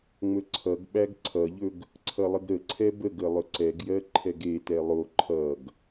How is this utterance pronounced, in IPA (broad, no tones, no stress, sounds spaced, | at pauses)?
ŋ͡m ɵ ǀʰ ʌ ɡ ɓ æ ɡ ǀʰ ʌ ʎ ɵ ɡ | ǀʰ ʌ lˠ ə ɡ ɾ ə ǀʰ ɛ b ə ɡ ə lˠ ɵ ǀ ɛ ɡ j ɜ ǃʰ ɛ ɡ e t ɛ lˠ o ǃʰ ʌ ɡ